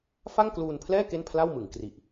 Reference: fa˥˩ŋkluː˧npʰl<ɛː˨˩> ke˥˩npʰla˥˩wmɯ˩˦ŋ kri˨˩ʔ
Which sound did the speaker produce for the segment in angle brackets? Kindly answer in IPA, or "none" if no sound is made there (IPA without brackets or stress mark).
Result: ɛː˥˩